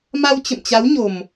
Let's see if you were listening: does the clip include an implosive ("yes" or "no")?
no